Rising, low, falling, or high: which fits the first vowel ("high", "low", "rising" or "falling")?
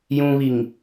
low